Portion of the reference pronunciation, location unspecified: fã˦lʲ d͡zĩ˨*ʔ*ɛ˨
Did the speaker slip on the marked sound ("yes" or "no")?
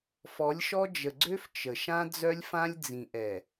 no